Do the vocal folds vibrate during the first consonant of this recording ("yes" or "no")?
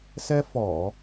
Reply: no